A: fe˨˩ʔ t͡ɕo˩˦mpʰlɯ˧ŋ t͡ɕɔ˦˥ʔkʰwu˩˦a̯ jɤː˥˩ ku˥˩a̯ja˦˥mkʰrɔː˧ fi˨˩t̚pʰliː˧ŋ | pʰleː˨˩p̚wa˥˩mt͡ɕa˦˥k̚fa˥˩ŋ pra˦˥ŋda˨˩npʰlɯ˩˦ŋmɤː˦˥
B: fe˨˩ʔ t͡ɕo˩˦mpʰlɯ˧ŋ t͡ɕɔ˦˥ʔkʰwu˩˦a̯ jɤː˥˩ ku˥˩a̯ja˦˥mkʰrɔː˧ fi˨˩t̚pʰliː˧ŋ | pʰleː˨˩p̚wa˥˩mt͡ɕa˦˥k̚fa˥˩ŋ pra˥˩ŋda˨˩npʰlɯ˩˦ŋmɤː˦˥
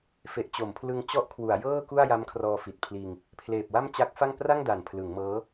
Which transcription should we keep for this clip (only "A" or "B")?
B